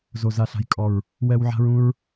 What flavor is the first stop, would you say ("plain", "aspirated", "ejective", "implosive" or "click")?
ejective